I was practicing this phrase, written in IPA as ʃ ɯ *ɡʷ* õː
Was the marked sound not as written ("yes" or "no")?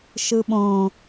yes